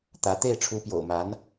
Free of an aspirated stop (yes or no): no